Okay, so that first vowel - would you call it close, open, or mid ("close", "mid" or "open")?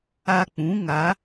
open